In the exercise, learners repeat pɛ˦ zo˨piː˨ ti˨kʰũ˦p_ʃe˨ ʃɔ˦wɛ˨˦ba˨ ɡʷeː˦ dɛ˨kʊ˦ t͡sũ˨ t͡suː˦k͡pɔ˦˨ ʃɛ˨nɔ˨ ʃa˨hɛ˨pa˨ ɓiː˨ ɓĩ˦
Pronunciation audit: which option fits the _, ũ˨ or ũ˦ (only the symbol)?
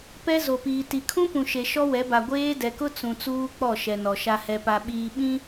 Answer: ũ˨